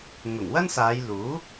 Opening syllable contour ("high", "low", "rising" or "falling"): low